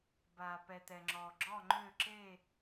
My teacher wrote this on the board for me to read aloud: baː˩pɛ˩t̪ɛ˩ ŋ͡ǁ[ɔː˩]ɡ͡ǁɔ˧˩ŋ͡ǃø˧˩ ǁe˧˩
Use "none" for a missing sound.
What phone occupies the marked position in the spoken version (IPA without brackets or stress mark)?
ɔː˩